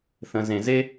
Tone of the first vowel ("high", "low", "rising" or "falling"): low